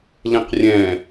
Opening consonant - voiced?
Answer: yes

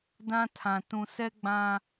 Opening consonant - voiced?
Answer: yes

